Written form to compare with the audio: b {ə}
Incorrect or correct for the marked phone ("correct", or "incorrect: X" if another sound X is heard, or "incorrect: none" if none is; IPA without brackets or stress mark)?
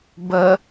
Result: correct